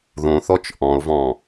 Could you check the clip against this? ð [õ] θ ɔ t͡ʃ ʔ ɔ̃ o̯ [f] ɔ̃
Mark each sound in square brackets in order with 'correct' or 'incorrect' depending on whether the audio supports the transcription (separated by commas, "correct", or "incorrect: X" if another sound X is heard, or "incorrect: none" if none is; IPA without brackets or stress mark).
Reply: correct, incorrect: v